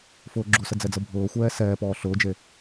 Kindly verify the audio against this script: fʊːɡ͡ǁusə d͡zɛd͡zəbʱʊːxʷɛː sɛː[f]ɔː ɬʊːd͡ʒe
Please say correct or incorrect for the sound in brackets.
incorrect